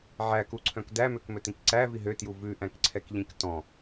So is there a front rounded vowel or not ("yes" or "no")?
yes